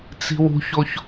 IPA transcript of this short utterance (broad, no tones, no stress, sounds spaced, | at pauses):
t͡s i̤ w ṳ ç o ç